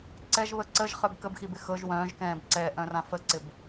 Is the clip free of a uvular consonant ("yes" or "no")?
no